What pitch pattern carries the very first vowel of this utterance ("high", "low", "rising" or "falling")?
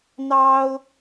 high